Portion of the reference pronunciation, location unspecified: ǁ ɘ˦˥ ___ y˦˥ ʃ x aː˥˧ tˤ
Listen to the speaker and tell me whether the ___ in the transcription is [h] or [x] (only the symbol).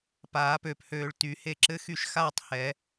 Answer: x